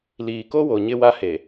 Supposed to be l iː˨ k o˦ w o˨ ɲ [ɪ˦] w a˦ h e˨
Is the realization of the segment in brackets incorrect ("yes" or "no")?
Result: no